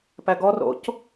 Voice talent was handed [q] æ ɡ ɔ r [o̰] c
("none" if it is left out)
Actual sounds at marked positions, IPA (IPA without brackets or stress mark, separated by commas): p, o̰